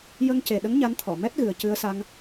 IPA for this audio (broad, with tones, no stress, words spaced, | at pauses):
jə˧ŋce˨˩ɗə˧˥ŋ ɲa˧˥nt̪ʰɔ˨˩˨ mɛ˦˥t̚ɣɨ˨˩ə̯ cɨ˧ə̯sa˧ŋ